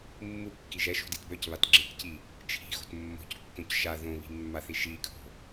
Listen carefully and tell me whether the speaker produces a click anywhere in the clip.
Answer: yes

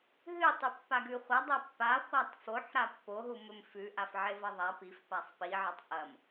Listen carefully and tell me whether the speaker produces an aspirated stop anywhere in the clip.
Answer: no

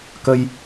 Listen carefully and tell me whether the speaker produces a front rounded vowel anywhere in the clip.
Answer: no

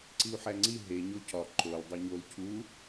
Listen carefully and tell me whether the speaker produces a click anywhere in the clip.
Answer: yes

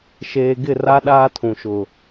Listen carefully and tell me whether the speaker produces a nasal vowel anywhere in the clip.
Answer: yes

